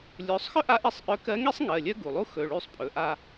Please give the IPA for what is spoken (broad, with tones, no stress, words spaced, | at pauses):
lʲɵː˩˥sˤ xœ˥ʔa˧˥ʔi˦˨sˤ ʔœ˧˥kɜ˧˥ŋi˥sˤ ŋɜ˩˧˩lʲœ˥ɡu˩lˠu˥ xɵ˩˧˩ɭy˦˨sˤ pʼɵ˩˧˩ʔa˦˨